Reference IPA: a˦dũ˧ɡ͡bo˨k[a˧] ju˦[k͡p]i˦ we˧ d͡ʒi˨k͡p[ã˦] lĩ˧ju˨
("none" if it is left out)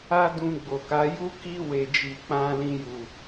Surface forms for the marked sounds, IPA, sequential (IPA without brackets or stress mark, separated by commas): a˨˦, k, ã˧